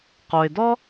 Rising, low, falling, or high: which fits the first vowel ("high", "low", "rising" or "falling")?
low